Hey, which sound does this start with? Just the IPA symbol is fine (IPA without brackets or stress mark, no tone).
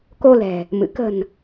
k